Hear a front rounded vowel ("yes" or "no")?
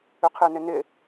yes